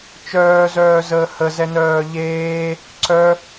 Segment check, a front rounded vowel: present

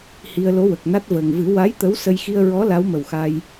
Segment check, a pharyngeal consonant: absent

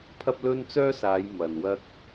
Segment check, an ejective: absent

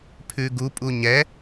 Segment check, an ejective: present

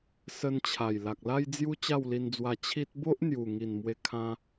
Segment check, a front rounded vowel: absent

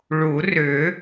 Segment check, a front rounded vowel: present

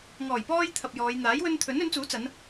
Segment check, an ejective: absent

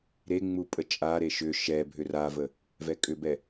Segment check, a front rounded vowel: present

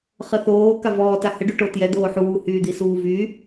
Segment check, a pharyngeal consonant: present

